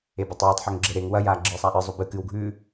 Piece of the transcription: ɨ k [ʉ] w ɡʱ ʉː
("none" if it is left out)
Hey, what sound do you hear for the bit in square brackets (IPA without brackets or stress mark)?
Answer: ɨ